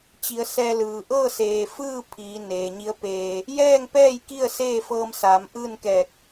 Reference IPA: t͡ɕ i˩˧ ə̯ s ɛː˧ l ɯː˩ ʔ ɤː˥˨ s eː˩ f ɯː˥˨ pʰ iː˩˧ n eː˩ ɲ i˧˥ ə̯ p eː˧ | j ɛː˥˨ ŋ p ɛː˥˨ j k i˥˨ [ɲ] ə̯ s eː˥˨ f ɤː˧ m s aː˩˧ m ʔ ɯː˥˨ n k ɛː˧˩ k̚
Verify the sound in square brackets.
incorrect: none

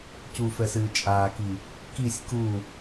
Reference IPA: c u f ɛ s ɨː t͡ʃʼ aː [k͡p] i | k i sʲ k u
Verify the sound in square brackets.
incorrect: k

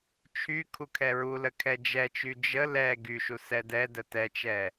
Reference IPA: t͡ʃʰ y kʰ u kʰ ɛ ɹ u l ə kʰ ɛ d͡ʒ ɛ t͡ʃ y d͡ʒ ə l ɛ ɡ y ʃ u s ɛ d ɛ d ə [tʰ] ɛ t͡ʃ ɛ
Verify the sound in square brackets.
incorrect: t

